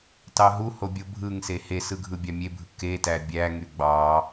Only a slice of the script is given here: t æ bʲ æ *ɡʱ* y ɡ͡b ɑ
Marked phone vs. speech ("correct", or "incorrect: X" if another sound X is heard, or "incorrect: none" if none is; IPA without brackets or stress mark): incorrect: ŋ